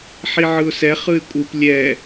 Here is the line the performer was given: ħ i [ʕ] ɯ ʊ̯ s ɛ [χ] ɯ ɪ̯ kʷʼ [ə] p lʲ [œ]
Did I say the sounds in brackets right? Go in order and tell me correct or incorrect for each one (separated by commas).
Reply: correct, correct, incorrect, incorrect